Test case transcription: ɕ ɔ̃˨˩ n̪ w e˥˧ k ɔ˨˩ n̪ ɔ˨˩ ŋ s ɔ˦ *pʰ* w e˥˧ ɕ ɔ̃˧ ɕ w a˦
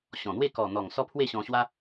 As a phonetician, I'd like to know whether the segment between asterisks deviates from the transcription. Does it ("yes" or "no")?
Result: no